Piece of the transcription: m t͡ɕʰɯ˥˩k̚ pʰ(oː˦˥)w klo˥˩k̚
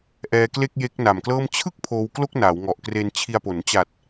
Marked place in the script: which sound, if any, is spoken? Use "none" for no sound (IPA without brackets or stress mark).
oː˧